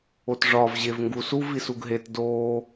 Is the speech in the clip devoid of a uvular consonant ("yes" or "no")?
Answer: yes